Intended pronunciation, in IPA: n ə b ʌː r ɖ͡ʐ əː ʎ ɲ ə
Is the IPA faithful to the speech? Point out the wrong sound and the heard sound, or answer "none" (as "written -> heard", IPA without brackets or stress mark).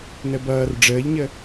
none